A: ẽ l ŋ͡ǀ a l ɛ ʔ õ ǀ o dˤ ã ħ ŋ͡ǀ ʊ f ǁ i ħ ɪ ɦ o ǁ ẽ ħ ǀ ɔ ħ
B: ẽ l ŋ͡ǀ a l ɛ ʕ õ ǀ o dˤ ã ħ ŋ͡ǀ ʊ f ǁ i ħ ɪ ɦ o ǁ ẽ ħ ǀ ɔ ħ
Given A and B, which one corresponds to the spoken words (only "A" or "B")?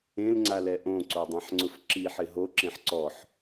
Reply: A